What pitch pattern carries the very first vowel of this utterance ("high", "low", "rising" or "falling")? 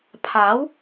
rising